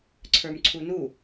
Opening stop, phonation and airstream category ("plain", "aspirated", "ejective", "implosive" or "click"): click